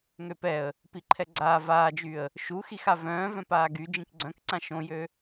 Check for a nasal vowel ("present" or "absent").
present